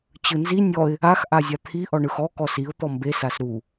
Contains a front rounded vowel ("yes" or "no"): no